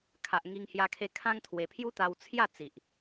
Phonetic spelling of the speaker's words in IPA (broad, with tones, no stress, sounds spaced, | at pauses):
kʰ a˨ ʔ ŋ i˧ ŋ h j a˧ kʰ e˧ kʰ ã˦ ŋ t̪ʰ w e˧ pʰ j u˦ t̪ a˧ w t͡sʰ j a˥˧ t͡s i˨ ʔ